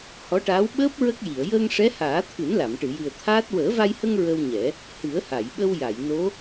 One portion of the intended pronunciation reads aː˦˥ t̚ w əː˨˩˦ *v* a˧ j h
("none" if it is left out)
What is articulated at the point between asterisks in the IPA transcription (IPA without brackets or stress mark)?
v